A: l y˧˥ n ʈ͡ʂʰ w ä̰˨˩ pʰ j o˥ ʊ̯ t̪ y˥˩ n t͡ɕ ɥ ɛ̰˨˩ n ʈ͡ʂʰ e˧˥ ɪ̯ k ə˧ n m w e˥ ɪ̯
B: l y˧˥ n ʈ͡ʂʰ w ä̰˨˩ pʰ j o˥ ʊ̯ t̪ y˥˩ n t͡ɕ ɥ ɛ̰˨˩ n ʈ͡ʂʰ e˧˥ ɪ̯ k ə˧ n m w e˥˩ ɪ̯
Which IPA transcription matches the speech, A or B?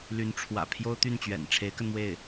B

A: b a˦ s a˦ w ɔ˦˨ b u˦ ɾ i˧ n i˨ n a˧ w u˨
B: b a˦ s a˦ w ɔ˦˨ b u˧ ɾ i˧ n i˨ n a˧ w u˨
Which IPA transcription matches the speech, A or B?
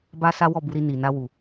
B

